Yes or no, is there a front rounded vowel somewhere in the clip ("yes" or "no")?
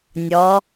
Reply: no